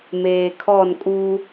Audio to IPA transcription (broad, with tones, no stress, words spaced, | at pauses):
meː˨kʰɔ˦˨nkʼu˦